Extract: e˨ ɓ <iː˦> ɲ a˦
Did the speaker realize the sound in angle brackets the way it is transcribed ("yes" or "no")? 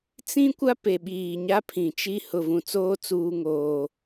no